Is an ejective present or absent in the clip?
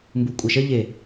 present